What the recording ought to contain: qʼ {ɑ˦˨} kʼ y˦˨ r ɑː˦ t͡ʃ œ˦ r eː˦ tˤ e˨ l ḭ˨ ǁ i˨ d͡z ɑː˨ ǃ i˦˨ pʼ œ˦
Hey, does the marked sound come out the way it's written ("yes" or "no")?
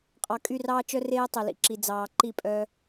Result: no